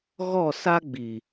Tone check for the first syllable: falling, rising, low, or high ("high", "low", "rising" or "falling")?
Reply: falling